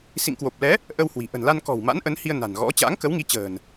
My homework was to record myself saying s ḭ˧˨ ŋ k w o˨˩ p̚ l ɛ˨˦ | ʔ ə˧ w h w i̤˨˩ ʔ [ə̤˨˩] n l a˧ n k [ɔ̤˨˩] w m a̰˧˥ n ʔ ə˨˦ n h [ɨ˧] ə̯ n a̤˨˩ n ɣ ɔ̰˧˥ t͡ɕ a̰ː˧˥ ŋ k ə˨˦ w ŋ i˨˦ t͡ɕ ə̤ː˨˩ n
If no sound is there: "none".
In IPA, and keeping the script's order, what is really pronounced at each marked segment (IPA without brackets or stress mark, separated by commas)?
ə̤˨˩, ɔ̤˨˩, i˧